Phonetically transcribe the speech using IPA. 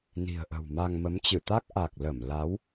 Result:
n i̤˨˩ ə̯ ʔ ə̤˨˩ w m a˧ ŋ m ə˨˦ m t͡ɕ ɨ˧˩ t̪ a˦˥ k̚ ʔ a˨˩ k̚ l ə˧˩ m l a˨˦ w

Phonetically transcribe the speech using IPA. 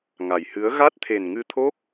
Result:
ŋ a˨˩ j h ɨ˨˦ ə̯ ɣ a˦˥ t̚ t̪ʰ e˨˩ n ŋ ɨ˧ t̪ʰ o˦˥ k̚

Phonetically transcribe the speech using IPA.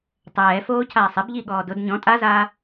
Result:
tˤ ɛː f oː cʰ aː sˤ ɪ b ʎ i ɠ ɔː d ʊ d ɲ ɔ̃ tʼ a z aː

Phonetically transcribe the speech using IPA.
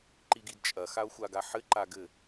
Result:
ǃ i ɡ i d t͡ʃʼ ɐ x a o̯ xʷ a ɡ a ħ ɘ ǃ a ɡ ɘ

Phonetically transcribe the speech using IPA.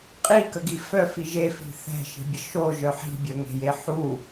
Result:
qʼ i k ə ɡ i f œ f i ʒ e f i̤ θ ɛ̤ ʃ i̤ bʲ ə ʃ o ʒ œ ħ i̤ bʲ œ ŋ e̤ j e ħ u

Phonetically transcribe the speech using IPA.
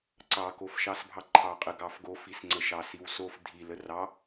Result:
ǀ ɑ k o f ʃ ɑ s bʱ ɑ ǃʰ ɑ qʼ ə ɡ ɑ f ɡ o f i s ŋ͡ǀ ə ʃ ɑ s i w s o f dʱ i l ə r ɑ

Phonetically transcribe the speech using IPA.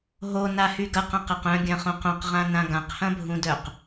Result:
ɦ o n a h y ɡ ɐ q ã q ɐ q œ̃ ɡʲ ɐ̃ χ õ q õ q ʁ ã n ã ɡ ã q h ɐ̃ bʱ ũ d œ q

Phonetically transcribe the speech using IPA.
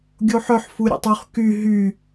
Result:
ɡʲ o ħ œ ħ f u ɾʲ ḛ tˤ ʉ χ k y ɦ y

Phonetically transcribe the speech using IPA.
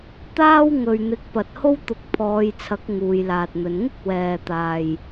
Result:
t̪ aː˥ w ŋ ɵ˨ ɥ n̪ ɪ˨˥ k̚ p ɐ˨ t̚ h o˥ w t̪ ʊ˨˥ k̚ pʰ ɔː˨˧ j t͡sʰ ɐ˨˥ k̚ ŋ uː˨˧ j l aː˨ t̚ n̪ ɵ˨˧ n ŋ ɪ˥ k̚ w ɛː˨ t̪ aː˨ j

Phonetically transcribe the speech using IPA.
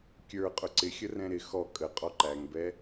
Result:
kʲ ə˞ qʼ ʊ ǀ ɪ xʲ ə r ɛ̃ ɾ ɪ x ɔ kʼ ə qʼ ɔ ǃ æ ŋ b ɛ

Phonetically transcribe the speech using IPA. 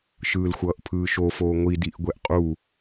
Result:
ʃ ɯː l xʷ ʌː ʔ pʰ ɯː ʃ o f oː ŋʷ i d i ʔ ɡʷ ɛ ʔ qʼ u

